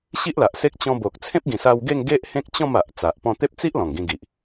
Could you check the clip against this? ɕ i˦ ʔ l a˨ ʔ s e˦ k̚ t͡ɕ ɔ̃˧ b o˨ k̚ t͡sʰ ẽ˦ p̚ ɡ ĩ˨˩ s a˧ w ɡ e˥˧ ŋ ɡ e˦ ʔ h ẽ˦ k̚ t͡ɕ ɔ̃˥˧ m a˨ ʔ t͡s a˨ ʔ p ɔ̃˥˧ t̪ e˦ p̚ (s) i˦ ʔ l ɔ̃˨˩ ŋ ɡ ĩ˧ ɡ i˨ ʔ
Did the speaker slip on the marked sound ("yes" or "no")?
yes